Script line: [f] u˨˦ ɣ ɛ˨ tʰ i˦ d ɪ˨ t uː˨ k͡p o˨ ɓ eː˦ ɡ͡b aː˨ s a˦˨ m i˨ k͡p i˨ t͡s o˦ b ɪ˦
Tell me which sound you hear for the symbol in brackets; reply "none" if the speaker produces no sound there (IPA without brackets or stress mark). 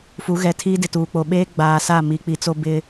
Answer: f